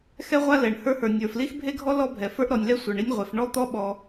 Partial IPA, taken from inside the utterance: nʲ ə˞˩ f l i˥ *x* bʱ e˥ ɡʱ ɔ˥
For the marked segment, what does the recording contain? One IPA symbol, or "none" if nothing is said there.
x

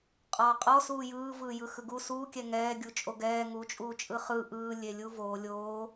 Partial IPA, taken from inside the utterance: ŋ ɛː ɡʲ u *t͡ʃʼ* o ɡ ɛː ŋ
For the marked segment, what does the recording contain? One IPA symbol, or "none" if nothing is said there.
t͡ʃʼ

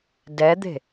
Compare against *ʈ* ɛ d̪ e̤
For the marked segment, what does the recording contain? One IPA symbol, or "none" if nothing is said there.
d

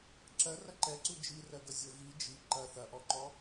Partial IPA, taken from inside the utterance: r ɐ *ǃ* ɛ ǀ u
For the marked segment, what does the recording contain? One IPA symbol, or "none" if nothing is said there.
ǃ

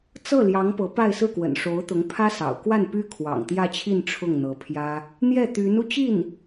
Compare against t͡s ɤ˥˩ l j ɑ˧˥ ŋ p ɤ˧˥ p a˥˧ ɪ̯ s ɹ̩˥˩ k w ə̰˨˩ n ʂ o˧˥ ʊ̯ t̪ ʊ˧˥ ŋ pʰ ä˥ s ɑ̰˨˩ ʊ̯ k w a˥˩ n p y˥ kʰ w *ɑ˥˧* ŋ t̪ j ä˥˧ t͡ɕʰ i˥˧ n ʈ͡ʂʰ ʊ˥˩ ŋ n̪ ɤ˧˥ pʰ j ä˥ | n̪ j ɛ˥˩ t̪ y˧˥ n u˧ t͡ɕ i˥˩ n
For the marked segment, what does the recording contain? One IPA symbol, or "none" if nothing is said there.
ɑ̰˨˩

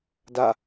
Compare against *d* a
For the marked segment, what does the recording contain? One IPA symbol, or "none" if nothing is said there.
d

